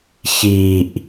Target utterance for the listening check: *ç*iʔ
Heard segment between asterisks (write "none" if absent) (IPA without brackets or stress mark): ç